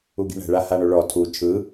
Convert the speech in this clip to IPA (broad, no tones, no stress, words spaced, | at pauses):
uɡi̤ɳɛ̤ ɭahaɳoɭɔ tʰu t͡ʃʰɯ